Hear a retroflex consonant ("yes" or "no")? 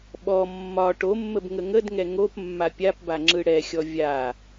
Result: yes